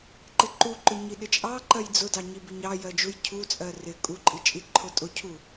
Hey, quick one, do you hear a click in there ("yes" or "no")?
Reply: yes